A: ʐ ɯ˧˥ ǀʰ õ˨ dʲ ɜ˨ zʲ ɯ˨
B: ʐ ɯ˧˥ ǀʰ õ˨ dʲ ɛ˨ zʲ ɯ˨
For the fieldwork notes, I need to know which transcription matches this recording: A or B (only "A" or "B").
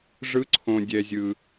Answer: B